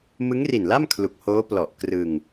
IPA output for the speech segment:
m ɯ˦˥ ŋ r i˨˩ n l a˥˩ m kʰ l u˨˩ k̚ h oː˦˥ p l ɔ˨˩ ʔ k r ɯ˧ ŋ

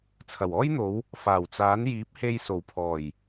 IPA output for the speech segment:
t͡sʰ ɐ˨˩ w ɔː˥ j n̪ o˨˧ w | f aː˨˩ w t͡s aː˨˥ n j iː˨˥ p̚ h e˧ j s o˨˩ w pʰ ɔː˨˩ j

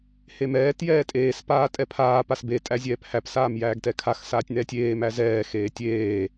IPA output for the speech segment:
h e m ɛː t j ɛː tʼ eː s p aː tʼ ɛ pʰ aː p a s b e tʼ æ zʲ ɛː p h æ p s aː m j æː ɡ t ɛ kʰ a x s aː tʲ n ɛː tʲ eː m æ z ɛː x eː tʲ eː

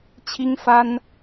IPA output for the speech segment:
t͡ɕʰ i˥ ŋ f a˥ n

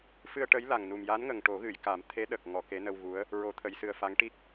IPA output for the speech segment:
f ɨ˧ ə̯ ʈ ə˧˥ j l a˨˩ ŋ n u˨˩ m j a˧˥ n ŋ ə˨˩ ŋ ʈ o˨˩˦ ɣ ɨ˨˩˨ j k a˨˩˦ m t̪ʰ e˧˥ ɗ ə˨˩ k̚ ŋ ɔ˨˩˨ k e˧˥ n ə˧ w ɣ u˧˥ ə̯ | ɹ o˨˩˦ t̪ʰ ə˨˩˨ j s ɨ˨˩ ə̯ f a˧˥ ŋ ʈ i˦˥ k̚

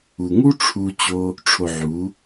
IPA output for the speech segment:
u˨ ŋ u˦ ʈ͡ʂʰ u˦ t͡ɕ o˦ | ʈ͡ʂʰ o˧ ʕ u˨˦

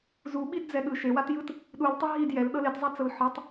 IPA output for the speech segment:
z u ɓ i d d͡z ɛ ɠ ɯ ʃ e w a t j ɯ t | ɗ u l tˤ ɛ ɦ i d j ɛ l ɗ ɤ l e t zˤ a t͡s ɤ l ħ ɤ tˤ

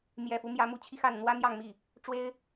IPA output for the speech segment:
m j ɛ˨˩ f u˦ m j ä˧˥ m u˧˥ t͡ɕʰ i˧ x a˥˩ n n̪ w ä˥ n̪ j ɑ˥˧ ŋ m i˥˩ | ʈ͡ʂ w e˥ ɪ̯

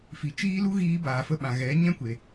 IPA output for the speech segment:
f i˨ t͡ʃ iː˦ l u˦ ɣ iː˦ b aː˨ f ə˧ ɓ ã˨ ɣ ɛ˨˦ ɲ ɛ̃˦ kʷ e˨

